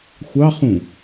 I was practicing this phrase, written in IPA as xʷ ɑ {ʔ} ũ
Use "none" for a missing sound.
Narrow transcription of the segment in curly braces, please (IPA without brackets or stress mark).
χ